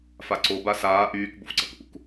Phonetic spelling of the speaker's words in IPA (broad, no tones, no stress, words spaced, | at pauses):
faǀo basaː ʔyːk bo̰fǀʌkʔṵk